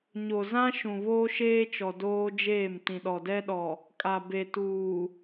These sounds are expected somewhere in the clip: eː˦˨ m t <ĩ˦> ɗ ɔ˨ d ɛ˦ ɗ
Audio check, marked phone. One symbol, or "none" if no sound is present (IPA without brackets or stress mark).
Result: ĩ˨